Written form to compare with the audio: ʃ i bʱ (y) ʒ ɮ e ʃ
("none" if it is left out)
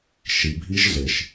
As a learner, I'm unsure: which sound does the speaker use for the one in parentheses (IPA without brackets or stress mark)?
i